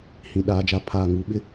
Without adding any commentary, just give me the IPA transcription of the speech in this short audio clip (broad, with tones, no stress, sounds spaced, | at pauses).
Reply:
h ĩ˨ ɗ aː˨ d͡ʒ a˨˦ pʰ aː˨ ŋ u˨˦ ɓ ɪ˦